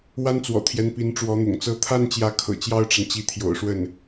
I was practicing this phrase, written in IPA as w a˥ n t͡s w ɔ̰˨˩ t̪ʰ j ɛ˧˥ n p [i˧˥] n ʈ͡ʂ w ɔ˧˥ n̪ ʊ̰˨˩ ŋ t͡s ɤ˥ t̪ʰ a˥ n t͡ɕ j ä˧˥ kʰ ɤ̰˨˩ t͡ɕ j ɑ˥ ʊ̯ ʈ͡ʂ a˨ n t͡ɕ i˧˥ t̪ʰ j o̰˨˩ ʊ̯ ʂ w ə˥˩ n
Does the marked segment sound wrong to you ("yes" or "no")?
no